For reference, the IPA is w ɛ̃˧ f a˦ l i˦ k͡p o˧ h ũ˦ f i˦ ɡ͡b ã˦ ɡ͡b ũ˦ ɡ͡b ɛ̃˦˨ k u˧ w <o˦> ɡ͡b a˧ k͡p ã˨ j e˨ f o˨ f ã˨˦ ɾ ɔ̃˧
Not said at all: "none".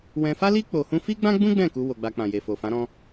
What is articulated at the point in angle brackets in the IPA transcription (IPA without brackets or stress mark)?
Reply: o˧